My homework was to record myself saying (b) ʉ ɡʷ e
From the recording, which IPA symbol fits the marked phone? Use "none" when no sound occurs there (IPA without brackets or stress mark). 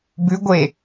b